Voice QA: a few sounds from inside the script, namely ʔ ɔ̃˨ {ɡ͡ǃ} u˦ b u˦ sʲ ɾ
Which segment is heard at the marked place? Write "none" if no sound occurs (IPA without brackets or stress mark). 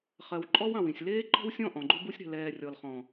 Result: ɡ͡ǃ